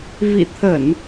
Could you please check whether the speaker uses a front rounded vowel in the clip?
no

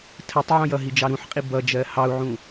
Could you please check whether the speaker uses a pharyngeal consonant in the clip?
yes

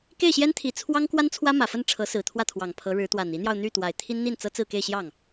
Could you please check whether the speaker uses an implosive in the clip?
no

